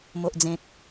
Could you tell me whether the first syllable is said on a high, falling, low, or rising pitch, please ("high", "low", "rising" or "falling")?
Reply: low